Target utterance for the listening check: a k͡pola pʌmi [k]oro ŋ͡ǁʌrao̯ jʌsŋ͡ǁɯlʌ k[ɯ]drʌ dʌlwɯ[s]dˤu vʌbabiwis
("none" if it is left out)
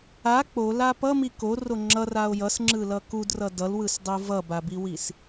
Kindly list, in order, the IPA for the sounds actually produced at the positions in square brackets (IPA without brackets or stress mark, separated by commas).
k, u, s